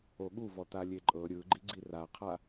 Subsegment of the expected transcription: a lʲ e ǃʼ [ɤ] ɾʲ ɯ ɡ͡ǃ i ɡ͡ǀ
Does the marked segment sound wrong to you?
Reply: no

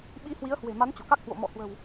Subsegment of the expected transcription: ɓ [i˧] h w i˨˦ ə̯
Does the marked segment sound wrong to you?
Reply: no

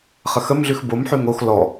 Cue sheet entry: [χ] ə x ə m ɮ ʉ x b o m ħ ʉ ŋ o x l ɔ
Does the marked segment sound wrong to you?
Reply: no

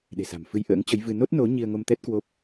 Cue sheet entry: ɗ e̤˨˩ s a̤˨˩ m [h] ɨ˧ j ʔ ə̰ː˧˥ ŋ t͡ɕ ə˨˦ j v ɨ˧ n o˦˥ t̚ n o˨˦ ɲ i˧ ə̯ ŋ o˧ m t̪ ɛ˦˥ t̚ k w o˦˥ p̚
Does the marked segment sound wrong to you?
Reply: yes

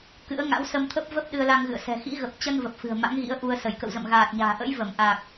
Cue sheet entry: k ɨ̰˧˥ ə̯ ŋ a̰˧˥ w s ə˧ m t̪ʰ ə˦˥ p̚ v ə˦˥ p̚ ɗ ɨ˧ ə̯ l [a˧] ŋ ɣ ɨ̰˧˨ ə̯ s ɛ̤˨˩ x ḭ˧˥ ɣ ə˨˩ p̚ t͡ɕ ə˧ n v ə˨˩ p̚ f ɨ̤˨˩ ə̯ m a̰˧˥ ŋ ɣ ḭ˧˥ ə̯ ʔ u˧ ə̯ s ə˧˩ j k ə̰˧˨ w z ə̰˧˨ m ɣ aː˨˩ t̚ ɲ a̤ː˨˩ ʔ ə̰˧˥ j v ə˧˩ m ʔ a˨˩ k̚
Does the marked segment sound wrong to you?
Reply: no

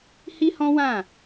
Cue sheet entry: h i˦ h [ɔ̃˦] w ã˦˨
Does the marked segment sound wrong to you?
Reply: no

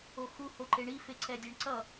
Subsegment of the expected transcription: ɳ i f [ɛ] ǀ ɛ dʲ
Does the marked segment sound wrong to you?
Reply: yes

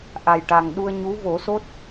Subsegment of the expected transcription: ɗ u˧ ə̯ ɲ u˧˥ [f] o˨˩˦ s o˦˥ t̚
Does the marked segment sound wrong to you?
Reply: yes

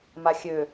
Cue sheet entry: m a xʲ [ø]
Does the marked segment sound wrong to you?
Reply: no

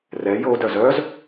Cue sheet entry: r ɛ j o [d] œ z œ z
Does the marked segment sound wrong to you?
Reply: no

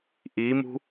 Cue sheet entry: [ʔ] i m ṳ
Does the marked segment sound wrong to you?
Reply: no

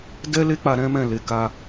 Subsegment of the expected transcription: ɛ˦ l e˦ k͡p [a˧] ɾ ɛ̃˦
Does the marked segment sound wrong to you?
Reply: no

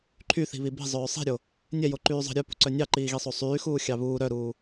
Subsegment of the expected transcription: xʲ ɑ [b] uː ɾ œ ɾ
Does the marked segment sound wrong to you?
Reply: yes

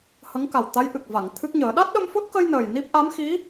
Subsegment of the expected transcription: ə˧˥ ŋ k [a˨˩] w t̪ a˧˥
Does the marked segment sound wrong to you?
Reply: no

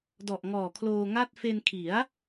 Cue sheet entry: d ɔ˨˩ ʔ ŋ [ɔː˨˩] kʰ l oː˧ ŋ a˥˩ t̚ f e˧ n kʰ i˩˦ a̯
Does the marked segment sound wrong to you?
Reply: no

